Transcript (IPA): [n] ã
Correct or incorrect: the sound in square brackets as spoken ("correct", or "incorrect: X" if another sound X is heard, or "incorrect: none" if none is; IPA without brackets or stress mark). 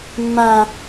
incorrect: mː